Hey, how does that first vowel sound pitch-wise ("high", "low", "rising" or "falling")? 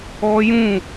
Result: high